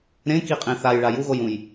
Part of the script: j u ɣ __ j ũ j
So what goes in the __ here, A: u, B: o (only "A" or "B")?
B